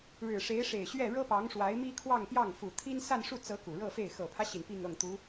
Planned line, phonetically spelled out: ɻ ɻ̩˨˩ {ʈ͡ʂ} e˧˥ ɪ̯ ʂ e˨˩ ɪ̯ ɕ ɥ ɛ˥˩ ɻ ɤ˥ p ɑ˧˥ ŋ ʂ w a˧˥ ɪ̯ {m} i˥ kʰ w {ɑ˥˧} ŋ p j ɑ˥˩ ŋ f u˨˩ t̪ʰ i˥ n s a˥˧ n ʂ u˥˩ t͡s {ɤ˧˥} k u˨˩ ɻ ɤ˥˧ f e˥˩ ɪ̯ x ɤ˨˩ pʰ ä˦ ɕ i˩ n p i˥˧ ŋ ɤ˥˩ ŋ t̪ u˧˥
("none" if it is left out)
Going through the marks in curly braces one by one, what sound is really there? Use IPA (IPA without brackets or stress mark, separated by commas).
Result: ʂ, m, ɑ˥˧, ɤ˧˥